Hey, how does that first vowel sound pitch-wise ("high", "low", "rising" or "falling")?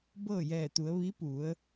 falling